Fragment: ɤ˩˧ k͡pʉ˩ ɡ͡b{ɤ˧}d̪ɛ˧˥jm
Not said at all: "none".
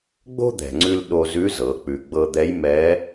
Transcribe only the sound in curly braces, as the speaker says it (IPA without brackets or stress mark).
ɤ˧